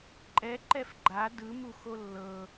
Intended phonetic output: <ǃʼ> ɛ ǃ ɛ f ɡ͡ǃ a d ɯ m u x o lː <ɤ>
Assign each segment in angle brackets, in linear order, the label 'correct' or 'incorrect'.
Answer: correct, correct

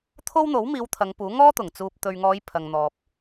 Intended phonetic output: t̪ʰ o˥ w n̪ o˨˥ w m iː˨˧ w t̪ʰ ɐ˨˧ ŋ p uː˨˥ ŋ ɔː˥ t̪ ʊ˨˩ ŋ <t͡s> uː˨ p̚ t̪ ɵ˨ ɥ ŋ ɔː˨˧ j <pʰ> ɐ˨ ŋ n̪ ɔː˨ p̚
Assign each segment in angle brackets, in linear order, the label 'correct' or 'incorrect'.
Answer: correct, correct

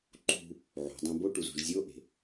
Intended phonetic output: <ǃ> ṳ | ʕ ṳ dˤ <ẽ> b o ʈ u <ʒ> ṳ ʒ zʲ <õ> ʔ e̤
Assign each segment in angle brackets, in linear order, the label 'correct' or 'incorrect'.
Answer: correct, correct, incorrect, incorrect

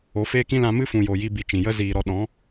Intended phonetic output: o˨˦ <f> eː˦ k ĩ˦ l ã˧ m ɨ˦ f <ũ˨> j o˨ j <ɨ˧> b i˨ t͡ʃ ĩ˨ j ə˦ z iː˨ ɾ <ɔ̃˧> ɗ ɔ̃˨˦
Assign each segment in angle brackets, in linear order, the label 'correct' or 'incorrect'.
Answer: correct, correct, incorrect, incorrect

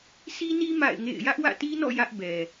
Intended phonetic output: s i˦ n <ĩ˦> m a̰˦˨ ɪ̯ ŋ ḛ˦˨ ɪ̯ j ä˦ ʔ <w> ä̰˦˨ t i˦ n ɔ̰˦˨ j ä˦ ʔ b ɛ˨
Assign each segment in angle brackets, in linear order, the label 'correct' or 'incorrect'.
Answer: incorrect, correct

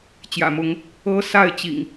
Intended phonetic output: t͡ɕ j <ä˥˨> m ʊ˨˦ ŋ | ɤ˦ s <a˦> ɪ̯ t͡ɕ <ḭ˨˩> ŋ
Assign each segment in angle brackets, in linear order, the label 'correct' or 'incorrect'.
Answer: incorrect, incorrect, correct

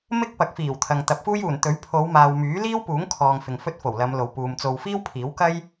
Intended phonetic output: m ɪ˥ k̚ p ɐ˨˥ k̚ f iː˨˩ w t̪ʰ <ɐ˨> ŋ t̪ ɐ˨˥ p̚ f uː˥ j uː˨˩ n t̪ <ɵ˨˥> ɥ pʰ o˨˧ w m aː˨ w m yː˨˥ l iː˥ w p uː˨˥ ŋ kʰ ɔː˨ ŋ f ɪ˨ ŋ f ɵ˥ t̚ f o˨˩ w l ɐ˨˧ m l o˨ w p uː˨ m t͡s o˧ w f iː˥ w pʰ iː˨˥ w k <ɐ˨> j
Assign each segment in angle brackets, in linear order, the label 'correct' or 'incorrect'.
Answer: correct, correct, incorrect

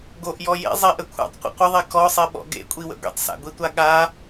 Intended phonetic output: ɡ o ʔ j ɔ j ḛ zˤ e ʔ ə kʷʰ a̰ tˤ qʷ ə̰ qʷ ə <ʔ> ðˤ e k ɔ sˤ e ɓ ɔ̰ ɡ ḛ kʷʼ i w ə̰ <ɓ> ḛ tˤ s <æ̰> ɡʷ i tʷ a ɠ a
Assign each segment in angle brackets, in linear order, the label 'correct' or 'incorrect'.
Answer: incorrect, incorrect, incorrect

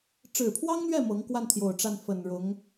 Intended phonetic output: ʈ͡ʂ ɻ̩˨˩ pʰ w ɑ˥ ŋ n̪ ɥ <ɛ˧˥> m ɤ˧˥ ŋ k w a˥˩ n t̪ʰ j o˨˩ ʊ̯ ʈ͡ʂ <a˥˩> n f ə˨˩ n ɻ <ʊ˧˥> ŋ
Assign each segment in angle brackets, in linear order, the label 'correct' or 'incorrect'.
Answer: incorrect, correct, correct

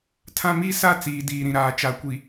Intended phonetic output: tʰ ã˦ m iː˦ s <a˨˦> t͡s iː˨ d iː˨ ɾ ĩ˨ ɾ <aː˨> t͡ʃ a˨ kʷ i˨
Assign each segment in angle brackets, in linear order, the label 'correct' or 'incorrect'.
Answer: incorrect, correct

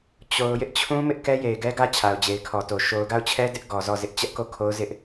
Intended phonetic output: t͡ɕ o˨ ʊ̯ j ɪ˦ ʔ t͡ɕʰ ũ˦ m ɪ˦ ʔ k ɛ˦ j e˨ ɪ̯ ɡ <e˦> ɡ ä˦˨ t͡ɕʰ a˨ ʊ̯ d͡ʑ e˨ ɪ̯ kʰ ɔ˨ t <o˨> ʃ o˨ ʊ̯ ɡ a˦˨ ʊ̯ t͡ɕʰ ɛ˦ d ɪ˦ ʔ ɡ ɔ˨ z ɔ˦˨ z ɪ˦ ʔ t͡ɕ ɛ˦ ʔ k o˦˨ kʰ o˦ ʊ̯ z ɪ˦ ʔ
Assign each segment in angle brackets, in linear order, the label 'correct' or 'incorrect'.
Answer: incorrect, correct

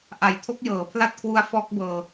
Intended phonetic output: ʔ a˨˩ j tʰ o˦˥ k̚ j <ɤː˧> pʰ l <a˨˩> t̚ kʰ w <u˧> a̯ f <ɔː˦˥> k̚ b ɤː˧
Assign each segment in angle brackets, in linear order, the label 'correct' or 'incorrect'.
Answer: incorrect, incorrect, incorrect, correct

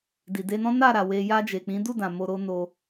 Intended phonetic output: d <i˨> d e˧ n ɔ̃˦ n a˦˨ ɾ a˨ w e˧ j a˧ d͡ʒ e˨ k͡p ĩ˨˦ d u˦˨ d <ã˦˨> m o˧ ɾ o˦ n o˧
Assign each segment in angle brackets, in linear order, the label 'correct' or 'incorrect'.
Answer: correct, incorrect

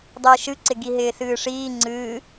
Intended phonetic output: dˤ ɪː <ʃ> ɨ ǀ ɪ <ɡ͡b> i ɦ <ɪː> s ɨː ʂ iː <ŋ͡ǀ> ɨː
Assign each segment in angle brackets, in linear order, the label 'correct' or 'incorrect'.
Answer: correct, incorrect, correct, correct

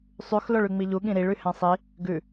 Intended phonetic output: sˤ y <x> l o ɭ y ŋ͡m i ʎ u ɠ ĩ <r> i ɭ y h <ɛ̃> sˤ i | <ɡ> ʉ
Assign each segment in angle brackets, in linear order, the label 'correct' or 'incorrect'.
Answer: correct, incorrect, correct, correct

